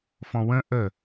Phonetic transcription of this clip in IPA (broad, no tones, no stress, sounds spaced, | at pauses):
f ɔ̃ w ə̃ ʔ ə